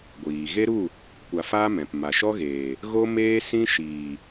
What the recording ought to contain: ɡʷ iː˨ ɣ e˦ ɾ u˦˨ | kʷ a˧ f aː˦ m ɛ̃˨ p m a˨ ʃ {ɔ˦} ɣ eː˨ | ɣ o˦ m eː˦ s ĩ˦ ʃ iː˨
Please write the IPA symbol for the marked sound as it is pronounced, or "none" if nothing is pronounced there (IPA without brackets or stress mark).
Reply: ɔ˦